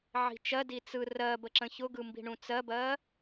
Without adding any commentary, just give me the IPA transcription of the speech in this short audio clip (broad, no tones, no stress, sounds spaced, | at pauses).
ʕ i̤ t͡ʃ ɜ d i t͡s ɯ r ɜ b ə ǁ ə̃ ç ʊ ɡ ɯ m b i̤ ɳ ũ t͡s ɜ b ɜ